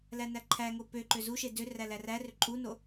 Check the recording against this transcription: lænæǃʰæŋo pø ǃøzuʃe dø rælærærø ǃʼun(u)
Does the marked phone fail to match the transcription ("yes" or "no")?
yes